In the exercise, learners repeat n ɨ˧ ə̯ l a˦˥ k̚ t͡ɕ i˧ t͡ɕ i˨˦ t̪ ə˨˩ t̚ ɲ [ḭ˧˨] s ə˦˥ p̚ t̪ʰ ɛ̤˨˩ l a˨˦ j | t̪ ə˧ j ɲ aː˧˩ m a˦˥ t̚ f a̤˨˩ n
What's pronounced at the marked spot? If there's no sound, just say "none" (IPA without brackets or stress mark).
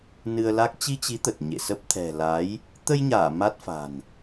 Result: ḛ˧˨